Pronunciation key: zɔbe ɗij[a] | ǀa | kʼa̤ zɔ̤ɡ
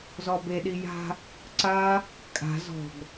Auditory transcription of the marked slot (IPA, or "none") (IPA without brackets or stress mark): a̤